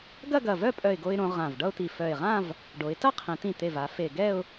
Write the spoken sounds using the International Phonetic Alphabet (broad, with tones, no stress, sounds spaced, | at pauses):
ɡ ɐ˥˧ ɡ ɐ˧˩ v œ˥˧ pʼ œ˧˩ ɪ̯ ɡ o˧ ɪ̯ ɾ õ˩˧ ʁ ã˧˩ v ɖ ʌ˥ ʊ̯ t̪ i˧˩ f œ˧˩ ɪ̯ ʁ ã˥˧ v | ɖ o˩˧ ɪ̯ t ɐ˥ qʰ ĩ˩˧ t̪ ĩ˧˩ t̪ e˧˩ v a˩˧ f e˧˩ ɡ ɛ˥˧ ʊ̯